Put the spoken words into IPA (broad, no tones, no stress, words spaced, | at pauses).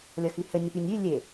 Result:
lʲʌxyhɘ nʲʌpynʲy lʲe